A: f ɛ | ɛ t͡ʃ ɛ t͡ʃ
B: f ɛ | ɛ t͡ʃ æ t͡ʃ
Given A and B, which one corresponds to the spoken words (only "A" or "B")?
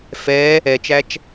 B